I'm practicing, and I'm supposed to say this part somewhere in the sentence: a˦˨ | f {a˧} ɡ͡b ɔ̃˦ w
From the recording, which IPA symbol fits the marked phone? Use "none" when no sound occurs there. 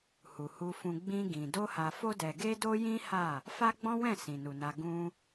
a˦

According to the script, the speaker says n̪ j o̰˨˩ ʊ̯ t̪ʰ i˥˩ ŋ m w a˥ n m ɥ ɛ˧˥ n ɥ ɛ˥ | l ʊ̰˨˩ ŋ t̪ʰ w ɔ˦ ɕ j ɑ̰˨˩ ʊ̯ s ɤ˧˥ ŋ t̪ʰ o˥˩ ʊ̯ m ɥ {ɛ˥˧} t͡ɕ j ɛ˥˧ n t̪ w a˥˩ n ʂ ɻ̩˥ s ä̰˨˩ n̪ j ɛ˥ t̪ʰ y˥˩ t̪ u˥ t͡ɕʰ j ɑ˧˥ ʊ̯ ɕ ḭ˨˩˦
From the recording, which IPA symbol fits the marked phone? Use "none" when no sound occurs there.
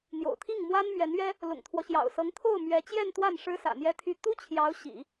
ɛ˧˥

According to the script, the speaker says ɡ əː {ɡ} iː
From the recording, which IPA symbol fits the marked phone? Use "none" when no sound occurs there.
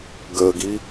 ɡ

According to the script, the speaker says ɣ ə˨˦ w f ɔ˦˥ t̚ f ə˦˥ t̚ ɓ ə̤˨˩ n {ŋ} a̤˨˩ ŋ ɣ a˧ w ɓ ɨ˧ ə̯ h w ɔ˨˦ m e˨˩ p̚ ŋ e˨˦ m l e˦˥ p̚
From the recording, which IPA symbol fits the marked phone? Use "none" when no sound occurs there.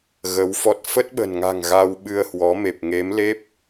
ŋ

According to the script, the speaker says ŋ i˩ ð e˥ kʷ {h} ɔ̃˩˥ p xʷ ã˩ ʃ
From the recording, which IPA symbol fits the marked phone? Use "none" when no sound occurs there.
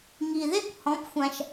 h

